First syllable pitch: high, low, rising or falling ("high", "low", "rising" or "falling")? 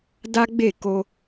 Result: high